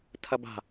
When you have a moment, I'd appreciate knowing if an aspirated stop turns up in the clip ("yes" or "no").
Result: yes